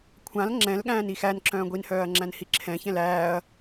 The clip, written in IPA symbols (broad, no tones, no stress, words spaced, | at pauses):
kʷʰãl ŋ͡ǁɛ̃lɠæ̃ːn ixænǁœ̃ː ɡʷinhœːɐ̯ ŋ͡ǁæ̃nhiǁʰɛ̃çɛ̃l æːɐ̯